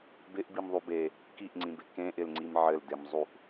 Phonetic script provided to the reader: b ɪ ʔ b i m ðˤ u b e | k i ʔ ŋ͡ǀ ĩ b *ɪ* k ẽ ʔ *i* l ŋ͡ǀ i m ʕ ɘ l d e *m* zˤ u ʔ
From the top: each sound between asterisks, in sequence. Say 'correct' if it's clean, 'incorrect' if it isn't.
correct, incorrect: ɪ, correct

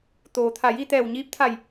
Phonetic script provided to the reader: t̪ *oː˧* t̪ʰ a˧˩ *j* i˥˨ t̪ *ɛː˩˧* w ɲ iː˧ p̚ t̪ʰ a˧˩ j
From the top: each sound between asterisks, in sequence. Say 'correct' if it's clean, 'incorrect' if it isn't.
incorrect: oː˩, correct, incorrect: ɛː˧˩

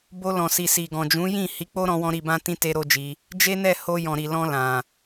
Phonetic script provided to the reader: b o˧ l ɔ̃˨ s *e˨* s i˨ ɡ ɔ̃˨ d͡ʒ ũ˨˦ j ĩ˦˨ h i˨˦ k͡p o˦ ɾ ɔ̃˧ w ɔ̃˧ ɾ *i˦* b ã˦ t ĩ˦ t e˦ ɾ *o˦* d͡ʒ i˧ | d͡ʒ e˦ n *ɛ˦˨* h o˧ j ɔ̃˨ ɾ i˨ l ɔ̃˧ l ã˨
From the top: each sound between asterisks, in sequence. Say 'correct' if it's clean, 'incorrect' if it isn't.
incorrect: i˨, incorrect: i˧, correct, correct

